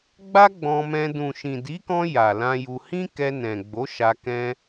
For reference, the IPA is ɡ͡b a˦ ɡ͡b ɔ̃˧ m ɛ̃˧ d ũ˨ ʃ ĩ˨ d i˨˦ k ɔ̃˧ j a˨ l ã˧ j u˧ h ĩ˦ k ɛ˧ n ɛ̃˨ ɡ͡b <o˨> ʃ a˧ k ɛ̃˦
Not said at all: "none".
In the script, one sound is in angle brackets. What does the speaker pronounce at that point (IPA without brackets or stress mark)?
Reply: o˨˦